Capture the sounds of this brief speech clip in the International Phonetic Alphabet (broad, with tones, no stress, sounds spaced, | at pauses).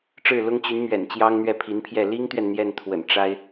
ʈ͡ʂ ɻ̩˥˩ l ʊ˥ ŋ t͡ɕ y˧˥ n m ɥ ɛ̰˨˩ n t͡ɕ j ɑ˥ ŋ n̪ ɥ ɛ˥˩ pʰ i˧˥ n pʰ j ɛ˥˩ l i˥ ŋ t̪ ɥ ɛ˨ n n̪ j ɛ˥˩ n t̪ʰ w ə̰˨˩ n ʈ͡ʂ a˥ ɪ̯